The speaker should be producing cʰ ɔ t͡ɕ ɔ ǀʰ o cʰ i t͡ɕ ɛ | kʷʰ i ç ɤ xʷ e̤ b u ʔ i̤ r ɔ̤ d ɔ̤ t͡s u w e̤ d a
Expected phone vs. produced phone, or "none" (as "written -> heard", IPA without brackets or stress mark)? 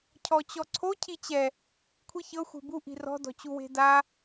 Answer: t͡s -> t͡ɕ